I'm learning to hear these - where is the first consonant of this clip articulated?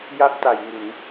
palate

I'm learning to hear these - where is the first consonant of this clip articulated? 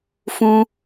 lips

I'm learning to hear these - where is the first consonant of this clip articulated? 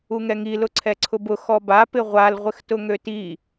velum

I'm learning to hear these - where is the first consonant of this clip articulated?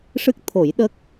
retroflex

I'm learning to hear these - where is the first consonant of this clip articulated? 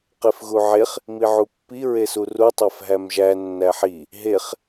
uvula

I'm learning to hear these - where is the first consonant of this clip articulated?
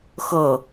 velum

